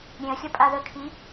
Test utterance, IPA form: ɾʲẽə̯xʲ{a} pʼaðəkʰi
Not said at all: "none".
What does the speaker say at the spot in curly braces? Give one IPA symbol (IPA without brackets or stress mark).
ʌ